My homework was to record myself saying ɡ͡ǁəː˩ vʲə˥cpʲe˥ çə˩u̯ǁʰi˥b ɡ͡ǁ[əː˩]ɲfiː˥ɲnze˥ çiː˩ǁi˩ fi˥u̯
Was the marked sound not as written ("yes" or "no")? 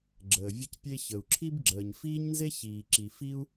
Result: no